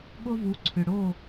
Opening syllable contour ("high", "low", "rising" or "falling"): high